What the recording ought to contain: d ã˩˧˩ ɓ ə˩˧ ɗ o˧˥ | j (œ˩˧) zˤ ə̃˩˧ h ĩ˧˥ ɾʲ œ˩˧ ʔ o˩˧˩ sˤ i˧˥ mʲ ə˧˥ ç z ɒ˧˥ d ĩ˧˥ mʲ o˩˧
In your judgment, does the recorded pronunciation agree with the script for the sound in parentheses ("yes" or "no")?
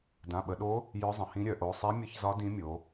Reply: no